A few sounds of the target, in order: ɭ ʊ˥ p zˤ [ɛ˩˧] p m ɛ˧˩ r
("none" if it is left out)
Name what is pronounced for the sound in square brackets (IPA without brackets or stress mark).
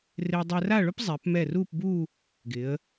ɛ˩˧